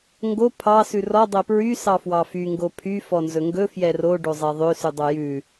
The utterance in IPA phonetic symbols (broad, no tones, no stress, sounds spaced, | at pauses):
ŋ ɡ o pʰ ɑ s ʉ r ɔ dˤ e p ɹ y s ɑ f w ɑ f y ŋ ɡ o pʰ y f ɔ n z ɵ ŋ ɡ ɵ f j ɛ r o ɖ o zˤ ɛ ðˤ ø s ʉ dˤ o j ʉ